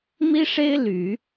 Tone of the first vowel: high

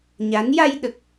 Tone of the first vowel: rising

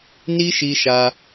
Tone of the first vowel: high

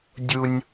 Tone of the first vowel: low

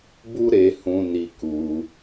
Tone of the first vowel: high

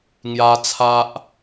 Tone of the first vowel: high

